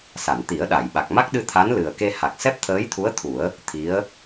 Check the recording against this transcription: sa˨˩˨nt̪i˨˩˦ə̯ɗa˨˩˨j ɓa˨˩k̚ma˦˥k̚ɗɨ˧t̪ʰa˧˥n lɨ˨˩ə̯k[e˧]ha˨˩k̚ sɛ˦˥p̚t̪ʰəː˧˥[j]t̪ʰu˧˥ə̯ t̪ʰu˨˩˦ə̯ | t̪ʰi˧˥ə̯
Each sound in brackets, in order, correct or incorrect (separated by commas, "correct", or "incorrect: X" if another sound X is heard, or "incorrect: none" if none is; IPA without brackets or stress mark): correct, correct